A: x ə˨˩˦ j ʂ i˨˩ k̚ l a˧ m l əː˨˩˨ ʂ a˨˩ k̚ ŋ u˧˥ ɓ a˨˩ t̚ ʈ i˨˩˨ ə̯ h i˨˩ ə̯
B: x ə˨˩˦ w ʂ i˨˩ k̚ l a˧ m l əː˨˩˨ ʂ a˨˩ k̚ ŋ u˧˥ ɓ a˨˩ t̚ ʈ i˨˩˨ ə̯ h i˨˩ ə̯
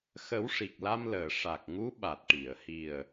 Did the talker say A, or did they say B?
B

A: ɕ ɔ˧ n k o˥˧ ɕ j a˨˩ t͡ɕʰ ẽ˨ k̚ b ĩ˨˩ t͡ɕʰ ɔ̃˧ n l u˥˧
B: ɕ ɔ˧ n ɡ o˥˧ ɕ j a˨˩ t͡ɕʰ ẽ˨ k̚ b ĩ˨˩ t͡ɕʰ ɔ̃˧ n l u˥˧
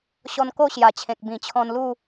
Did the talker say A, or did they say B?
A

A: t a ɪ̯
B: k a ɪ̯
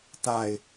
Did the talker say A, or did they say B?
A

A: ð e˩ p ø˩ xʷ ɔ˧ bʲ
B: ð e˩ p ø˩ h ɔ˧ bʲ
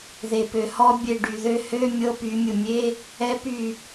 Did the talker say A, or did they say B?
B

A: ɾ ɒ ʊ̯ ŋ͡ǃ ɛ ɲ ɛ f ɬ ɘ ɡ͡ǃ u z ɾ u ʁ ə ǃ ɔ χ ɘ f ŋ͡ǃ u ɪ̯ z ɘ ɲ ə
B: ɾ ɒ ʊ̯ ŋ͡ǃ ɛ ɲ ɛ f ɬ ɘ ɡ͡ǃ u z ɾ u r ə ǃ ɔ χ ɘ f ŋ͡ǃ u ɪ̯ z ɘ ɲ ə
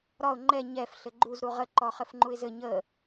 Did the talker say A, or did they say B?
A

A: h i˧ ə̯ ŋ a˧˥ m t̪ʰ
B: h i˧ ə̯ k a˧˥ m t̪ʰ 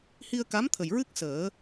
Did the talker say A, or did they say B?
B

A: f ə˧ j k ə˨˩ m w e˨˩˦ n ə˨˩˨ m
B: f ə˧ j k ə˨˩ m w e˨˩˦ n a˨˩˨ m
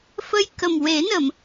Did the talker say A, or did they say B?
A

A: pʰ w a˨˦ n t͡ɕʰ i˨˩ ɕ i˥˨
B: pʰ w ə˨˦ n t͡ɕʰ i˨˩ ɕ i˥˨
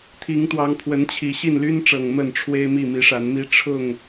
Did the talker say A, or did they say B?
B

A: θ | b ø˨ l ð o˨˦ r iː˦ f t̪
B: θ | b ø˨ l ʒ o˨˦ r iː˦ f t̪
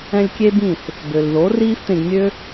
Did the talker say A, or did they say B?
A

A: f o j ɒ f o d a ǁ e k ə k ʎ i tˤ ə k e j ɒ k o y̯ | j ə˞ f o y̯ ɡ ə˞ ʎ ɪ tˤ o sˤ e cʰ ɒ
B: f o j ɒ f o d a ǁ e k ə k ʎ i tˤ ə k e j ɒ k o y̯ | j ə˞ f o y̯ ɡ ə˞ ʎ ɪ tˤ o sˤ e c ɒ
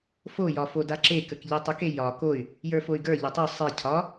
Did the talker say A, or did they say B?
A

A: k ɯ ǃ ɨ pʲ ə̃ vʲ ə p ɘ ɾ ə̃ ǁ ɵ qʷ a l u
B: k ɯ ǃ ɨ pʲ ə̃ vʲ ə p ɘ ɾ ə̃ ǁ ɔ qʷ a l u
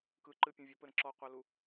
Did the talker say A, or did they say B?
B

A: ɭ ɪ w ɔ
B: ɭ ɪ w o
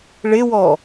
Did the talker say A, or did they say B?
A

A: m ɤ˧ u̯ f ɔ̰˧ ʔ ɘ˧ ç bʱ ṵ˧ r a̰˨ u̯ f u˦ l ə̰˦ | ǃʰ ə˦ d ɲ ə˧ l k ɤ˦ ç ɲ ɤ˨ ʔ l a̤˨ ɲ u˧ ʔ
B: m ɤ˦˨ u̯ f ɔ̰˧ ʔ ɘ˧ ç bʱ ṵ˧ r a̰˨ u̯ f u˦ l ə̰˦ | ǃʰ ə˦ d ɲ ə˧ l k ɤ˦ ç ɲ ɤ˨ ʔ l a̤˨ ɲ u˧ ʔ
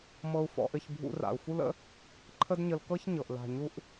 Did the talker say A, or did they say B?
A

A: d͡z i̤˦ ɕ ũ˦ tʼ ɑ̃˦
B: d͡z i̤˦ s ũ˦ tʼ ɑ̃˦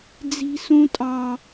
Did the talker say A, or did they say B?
B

